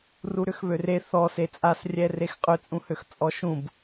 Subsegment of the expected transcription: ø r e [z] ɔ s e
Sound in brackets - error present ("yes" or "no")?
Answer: yes